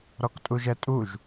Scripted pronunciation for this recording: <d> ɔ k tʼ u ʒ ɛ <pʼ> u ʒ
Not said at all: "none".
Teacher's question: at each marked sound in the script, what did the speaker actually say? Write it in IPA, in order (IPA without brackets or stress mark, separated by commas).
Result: ɾ, tʼ